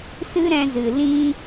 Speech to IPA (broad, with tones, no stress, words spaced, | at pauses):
sɨ˦ɾɛ̃˧zɨ˨ lĩ˦